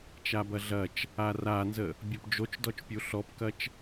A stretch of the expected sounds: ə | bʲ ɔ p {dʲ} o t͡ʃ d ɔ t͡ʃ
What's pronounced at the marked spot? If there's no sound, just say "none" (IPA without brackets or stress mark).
d͡ʒ